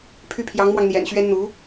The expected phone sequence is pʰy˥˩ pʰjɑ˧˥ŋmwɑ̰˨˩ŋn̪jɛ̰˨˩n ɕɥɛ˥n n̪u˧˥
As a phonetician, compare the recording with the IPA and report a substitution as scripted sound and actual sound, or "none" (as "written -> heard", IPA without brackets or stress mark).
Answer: ɑ̰˨˩ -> ɑ˧